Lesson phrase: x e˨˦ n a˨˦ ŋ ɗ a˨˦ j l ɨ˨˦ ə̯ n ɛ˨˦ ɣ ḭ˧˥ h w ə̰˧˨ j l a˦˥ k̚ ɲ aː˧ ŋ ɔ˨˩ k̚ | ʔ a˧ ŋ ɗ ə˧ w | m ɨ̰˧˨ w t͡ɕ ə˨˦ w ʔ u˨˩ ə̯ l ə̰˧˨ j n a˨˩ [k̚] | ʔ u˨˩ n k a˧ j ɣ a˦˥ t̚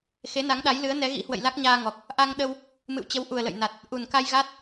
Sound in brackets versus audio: incorrect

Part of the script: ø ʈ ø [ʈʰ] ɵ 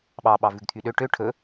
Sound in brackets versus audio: correct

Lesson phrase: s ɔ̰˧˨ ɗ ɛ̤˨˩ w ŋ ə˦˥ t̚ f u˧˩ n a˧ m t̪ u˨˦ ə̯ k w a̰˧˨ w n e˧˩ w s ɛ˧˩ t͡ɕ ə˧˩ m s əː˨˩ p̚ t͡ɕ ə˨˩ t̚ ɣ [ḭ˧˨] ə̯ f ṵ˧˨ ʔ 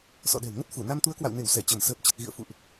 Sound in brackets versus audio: correct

